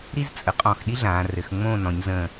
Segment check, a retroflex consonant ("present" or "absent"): absent